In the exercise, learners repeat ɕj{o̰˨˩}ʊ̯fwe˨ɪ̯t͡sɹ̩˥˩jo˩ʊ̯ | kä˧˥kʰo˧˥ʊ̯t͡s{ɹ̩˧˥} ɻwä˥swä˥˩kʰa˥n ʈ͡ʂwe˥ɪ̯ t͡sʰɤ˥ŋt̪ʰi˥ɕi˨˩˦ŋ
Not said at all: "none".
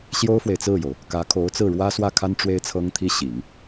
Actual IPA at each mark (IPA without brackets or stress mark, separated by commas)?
o˥, ɹ̩˥˩